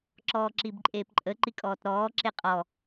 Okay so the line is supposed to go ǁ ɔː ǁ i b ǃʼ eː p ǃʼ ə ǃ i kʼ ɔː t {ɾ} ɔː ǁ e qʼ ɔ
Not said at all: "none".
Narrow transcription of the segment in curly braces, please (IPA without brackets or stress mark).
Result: ɾ